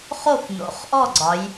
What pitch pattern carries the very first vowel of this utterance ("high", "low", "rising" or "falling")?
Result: falling